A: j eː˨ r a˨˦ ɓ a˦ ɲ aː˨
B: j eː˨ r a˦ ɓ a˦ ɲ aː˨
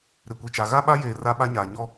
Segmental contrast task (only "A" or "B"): B